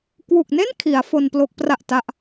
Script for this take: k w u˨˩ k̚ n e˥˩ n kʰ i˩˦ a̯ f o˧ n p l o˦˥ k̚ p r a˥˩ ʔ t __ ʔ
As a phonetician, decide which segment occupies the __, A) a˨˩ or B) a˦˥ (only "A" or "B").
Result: B